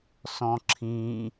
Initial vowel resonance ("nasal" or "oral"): nasal